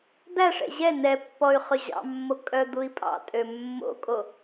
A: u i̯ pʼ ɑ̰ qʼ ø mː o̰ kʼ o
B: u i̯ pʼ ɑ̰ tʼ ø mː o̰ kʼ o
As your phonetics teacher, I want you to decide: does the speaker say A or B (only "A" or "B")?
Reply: B